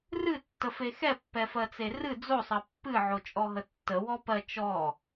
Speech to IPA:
r ɨ tː ə f e x ɛ pː ɛ f ɜ t͡s e r ɨ d͡z o sˤ ɜ pː ɨ ʕ o t͡ʃʼ ɔ ɦ ə tː ə w ɔ p ɜ t͡ʃ ɔ

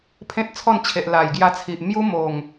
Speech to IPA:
pʰ ẽ˦ t̚ t͡sʰ ɔ˥˧ n t͡ɕʰ e˨ ʔ l a˨˩ j ɡ j a˧ t͡sʰ i˨ ʔ m j u˦ m o˨˩ ŋ

